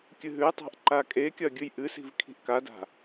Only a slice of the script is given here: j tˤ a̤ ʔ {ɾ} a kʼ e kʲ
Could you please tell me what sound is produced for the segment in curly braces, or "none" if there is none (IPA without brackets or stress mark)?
ǃ